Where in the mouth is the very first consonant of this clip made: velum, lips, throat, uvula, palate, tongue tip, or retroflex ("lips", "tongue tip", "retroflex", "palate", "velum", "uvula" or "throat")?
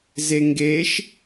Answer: tongue tip